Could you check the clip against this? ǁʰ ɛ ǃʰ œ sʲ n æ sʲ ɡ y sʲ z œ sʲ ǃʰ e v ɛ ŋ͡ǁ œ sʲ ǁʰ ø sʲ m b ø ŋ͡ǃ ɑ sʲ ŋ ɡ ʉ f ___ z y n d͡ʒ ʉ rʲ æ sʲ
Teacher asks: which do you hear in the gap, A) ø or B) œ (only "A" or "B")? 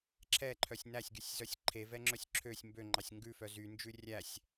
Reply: B